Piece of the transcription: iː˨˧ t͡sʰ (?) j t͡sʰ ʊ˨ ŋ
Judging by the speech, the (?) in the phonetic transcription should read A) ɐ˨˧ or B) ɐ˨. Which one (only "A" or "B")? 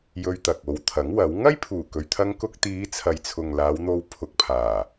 B